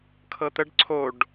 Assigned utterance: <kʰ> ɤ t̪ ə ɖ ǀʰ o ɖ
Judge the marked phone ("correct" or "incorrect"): correct